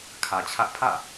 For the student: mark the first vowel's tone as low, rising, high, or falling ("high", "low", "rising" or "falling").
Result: low